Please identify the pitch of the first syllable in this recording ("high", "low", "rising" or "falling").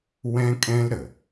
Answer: high